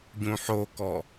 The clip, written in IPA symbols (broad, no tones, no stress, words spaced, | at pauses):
ɟũħokɔ